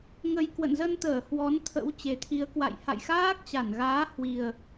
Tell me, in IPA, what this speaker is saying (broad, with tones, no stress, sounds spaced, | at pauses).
ŋ ə˨˩ j k w ə̰˧˨ n z ə˧ n t̪ əː˧˩ h w ɔ˨˦ n t̪ʰ ə̰˧˥ w t͡ɕ e˨˩ t̪ʰ i˨˦ ə̯ k w a̰˧˨ j h a̰˧˨ j x aː˦˥ k̚ t͡ɕ a˧˩ n ɣ aː˨˦ h w i˨˩ ə̯